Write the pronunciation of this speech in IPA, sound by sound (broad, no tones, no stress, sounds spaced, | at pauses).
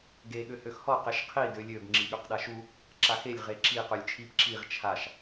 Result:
ɡ e ɠ ø h ø x h ɔ q e ʃ qʰ i d ø lʲ ø b ŋ͡ǁ i ɠ ø q ɗ a ʃ u | ǁ a x e lʲ ʁ e ǁ i q ø lʲ t͡ʃʰ i p ǁ i ʁ t͡ʃʰ a ʃ